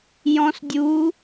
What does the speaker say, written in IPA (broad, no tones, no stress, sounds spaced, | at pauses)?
j ɔ̃ s dʲ u